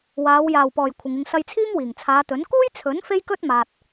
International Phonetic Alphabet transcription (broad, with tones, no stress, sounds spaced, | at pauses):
w aː˨˧ w j aː˨˩ w p ɔː˨˩ j kʷʰ ɪ˨ ŋ ɪ˧ ŋ s ɐ˧ j t͡sʰ iː˥ ŋ w iː˨˩ ŋ t͡sʰ aː˨˧ t̪ ɵ˨˥ n k uː˥ j t͡sʰ ɵ˨˥ n f e˥ j k ɵ˥ t̚ m aː˨ t̚